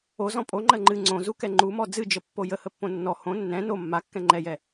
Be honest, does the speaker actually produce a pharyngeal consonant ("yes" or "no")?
no